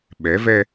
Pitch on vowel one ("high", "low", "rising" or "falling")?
rising